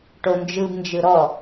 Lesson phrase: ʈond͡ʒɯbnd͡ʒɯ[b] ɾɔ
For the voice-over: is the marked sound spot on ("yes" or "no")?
no